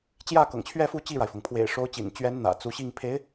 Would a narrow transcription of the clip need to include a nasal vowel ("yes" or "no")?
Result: no